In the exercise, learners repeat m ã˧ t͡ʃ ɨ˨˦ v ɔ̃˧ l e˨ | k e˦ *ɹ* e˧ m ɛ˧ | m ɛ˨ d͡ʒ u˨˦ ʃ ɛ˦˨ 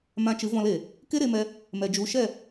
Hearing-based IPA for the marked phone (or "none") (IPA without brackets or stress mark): ɾ